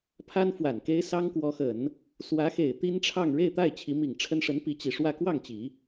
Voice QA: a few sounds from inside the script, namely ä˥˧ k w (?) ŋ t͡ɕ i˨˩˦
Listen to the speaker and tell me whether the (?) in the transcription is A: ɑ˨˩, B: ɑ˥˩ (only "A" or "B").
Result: B